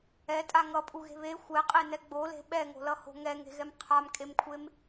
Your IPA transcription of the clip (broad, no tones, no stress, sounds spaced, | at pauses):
ɛ tʼ a ŋ ʌ pʼ u ɣ e̤ β e xʷ ɛ qʼ e n ɛ ɡ͡b o l e̤ ɓ ɛ ŋ o̤ l ʌ h o̤ ŋ ɛ ŋ e̤ ɣ ɛ m qʰ a m kʼ e m kʷʰ e m